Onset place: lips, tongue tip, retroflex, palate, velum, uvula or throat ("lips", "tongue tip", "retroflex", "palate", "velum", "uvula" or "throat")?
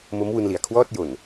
lips